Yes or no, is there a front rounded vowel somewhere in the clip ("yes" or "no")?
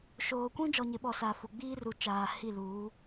no